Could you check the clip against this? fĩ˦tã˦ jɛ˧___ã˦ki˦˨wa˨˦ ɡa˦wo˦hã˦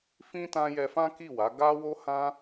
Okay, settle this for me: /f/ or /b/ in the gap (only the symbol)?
f